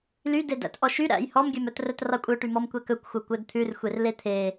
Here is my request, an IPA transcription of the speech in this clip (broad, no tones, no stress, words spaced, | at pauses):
lydedæ̰t ʔɔʃy ɾæ̰j hɔmɡʲœmœtrœt rɑkʷʼœʈymɔm kʷɛkɵkʷxʷœ kʷœdt̪ʰʉr xʷerlet̪ʰe